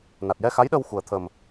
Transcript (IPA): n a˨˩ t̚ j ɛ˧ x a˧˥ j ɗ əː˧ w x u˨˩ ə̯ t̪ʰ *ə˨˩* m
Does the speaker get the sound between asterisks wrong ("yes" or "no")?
no